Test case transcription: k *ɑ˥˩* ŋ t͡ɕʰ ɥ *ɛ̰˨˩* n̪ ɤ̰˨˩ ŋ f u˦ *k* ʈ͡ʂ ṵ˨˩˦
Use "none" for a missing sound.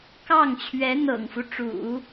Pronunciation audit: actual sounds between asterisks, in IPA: ɑ˥˩, ɛ˧˥, none

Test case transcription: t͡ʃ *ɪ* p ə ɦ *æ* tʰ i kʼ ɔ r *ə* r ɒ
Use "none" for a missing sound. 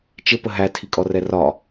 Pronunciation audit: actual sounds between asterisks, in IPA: ɪ, æ, ɛ

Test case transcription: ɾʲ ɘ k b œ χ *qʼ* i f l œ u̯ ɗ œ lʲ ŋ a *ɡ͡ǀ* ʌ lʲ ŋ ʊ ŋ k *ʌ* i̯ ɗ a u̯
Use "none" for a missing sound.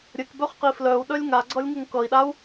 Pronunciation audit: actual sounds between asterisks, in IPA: q, ɡ͡ǀ, ʌ

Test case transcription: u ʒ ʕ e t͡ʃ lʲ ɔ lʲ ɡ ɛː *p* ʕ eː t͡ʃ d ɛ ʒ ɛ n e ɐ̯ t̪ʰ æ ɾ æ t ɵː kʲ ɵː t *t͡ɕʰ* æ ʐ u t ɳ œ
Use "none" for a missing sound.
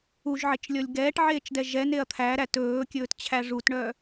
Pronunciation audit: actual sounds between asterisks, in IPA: ʈ, t͡ɕʰ

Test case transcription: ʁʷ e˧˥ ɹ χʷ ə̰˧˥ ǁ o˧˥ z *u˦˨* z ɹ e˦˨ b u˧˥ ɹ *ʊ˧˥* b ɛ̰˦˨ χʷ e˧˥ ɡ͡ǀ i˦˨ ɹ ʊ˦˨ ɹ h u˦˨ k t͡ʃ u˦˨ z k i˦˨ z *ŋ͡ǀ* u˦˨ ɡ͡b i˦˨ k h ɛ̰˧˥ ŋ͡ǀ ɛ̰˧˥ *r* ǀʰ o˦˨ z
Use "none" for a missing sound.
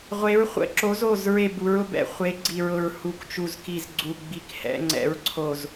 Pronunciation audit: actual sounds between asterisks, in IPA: o˦˨, ʊ˧˥, ɡ͡ǀ, ɹ

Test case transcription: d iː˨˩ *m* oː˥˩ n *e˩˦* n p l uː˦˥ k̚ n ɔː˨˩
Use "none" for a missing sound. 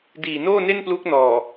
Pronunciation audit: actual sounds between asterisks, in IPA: n, e˥˩

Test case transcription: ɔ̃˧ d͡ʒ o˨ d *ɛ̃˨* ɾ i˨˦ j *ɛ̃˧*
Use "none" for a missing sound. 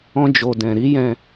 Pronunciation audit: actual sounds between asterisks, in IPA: ɛ̃˨, ɛ̃˧

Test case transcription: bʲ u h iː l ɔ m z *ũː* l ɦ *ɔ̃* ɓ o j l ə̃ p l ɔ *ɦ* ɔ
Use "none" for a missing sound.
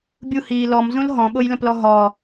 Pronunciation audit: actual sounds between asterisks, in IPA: ũ, ɔ̃, ɦ

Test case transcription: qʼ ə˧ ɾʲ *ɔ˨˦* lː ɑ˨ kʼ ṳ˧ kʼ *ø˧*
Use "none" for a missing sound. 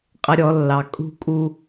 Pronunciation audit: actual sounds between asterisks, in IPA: ɔ˨˦, u˧

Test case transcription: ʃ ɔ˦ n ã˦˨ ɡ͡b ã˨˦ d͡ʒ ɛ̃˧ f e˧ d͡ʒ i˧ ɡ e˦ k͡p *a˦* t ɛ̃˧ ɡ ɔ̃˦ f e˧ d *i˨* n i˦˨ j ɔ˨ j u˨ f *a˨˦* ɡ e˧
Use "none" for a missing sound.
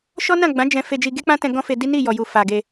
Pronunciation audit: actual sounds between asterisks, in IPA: ã˦, i˦, a˨

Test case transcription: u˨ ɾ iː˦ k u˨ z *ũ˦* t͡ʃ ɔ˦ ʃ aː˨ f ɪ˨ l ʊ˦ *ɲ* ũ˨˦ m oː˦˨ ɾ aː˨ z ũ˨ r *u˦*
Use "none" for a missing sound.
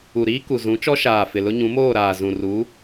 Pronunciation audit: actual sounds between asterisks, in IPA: ũ˨˦, ɲ, u˨˦

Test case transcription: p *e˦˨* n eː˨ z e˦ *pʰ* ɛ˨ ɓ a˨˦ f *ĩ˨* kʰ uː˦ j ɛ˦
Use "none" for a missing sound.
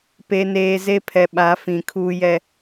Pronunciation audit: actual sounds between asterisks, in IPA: e˨, pʰ, ĩ˨

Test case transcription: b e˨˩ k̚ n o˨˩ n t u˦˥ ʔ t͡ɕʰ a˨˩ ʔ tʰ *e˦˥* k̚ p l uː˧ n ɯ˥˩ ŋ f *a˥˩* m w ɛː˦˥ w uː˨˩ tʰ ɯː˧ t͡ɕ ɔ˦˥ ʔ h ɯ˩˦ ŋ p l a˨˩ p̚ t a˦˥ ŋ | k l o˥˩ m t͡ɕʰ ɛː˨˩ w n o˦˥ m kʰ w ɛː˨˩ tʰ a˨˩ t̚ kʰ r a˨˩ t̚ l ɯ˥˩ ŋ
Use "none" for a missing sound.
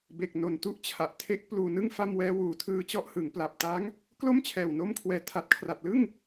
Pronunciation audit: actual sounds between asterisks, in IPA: e˦˥, a˥˩

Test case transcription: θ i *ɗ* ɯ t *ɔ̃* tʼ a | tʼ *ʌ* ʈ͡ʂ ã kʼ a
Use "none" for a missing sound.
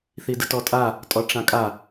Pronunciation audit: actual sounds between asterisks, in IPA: d, ɔ, ɔ

